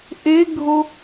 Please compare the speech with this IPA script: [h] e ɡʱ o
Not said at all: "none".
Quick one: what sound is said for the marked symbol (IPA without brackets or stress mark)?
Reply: ʔ